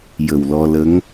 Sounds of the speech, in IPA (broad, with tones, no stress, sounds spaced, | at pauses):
j ə˨˩ w l ɔ˧ l ə˧˥ ŋ